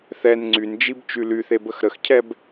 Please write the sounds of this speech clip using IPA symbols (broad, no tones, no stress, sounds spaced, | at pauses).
θ ɛ n ŋ͡ǀ y n d͡ʒ i b t͡ʃ y l y θ e b ə x ɾ ə x cʰ ɛ b